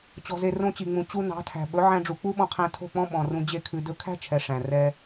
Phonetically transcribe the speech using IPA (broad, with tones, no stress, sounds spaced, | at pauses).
t͡ɕ ɔ̤˨ z e˨ r õ˧ t͡ɕ i˨ ŋ͡m ũ˨ t͡ɕ u˧ n ɑ̤˨˦ tʰ æ̤˨ ɓ ɵ˨˦ ʕ æ̃˧ ɖ͡ʐ u˨ k͡p u˦ ɓ ɔ̃˧ qʰ æ̃˧ tʰ o̤˦˨ k͡p ɔ̃˦ ɓ ɔ̃˨ r ũ˧ d͡ʑ e˦ kʰ ʉ˧ d ɵ˧ kʰ æ̤˦ t͡ʃʰ ɛ˨ ʂ æ̃˨ r ɛ˧